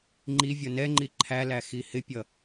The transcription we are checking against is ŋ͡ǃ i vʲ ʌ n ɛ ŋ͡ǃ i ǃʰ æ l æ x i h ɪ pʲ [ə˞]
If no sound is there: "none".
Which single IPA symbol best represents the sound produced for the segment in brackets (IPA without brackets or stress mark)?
ʌ